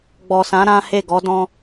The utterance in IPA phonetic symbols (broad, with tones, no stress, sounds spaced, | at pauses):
ɡ͡b ɔ˨ s ã˨˦ ɾ ã˦ h e˦˨ ɡ ɔ˨˦ d ɔ̃˦